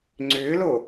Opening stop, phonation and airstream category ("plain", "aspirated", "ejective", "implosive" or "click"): click